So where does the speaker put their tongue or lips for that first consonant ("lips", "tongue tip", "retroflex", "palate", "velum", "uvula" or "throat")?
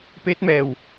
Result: lips